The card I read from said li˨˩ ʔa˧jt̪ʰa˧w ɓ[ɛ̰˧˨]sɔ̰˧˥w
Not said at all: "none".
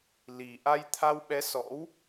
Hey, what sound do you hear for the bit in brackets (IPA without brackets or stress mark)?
ɛ˨˦